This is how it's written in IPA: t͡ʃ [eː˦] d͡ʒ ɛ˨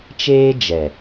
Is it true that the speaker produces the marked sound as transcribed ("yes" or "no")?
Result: yes